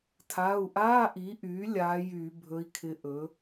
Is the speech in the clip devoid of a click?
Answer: yes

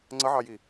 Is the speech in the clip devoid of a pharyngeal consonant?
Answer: no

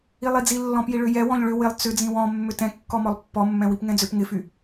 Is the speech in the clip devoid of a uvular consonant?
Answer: yes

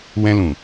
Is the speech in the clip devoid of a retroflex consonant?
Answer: yes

